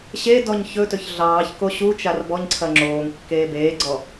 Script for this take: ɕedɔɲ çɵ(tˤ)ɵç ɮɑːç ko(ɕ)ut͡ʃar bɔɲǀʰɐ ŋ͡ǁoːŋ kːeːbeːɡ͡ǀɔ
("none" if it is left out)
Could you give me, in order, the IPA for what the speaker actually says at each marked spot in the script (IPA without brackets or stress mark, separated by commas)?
t, ɕ